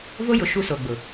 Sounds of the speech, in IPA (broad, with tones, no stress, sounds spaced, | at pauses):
v o˦ j ʊ˨ ʃ u˦ s o˨ ɡ͡b ʊ˨